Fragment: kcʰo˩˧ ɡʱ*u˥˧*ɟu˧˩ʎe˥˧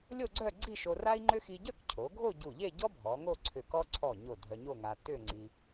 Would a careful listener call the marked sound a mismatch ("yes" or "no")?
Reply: yes